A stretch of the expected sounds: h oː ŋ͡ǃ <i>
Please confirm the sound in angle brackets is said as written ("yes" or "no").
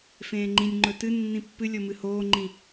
no